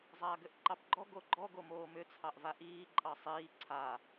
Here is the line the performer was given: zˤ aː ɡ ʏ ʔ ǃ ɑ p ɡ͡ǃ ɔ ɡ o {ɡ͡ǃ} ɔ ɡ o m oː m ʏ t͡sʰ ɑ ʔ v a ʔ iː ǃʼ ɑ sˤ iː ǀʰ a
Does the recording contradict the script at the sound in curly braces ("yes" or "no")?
no